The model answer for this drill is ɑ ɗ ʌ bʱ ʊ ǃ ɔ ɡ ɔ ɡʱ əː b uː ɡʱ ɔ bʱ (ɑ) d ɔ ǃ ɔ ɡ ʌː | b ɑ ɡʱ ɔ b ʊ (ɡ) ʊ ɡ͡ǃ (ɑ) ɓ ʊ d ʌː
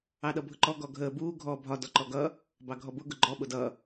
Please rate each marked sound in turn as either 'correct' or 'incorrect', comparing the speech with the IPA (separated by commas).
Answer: incorrect, correct, incorrect